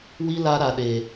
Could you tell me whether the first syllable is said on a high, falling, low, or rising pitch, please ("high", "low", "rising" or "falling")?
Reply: high